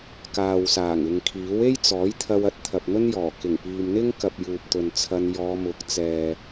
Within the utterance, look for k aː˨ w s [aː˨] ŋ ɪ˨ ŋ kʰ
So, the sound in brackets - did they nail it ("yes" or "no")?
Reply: no